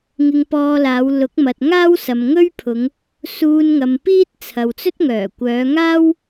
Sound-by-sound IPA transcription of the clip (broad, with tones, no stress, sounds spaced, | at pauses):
ŋ ɪ˧ ŋ p ɔː˧ l aː˨˧ w l ʊ˨˥ k̚ m ɐ˨ t̚ ŋ aː˥ w s ɐ˨ m ŋ ɵ˥ ɥ pʰ ʊ˨˧ ŋ | s uː˧ n ŋ ɐ˨ m p iː˥ t̚ t͡sʰ ɐ˨ w t͡s ɵ˥ t̚ ŋ œː˨˩ kʷ œː˨˧ ŋ aː˥ w